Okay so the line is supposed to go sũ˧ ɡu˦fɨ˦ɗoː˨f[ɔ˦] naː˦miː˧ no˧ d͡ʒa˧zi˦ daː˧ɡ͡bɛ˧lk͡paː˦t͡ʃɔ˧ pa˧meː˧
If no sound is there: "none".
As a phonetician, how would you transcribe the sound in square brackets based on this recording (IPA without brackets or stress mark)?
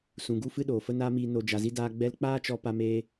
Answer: ə˦